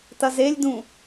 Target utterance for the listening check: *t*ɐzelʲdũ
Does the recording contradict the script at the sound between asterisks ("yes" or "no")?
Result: no